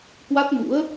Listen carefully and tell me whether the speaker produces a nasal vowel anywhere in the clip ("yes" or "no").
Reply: no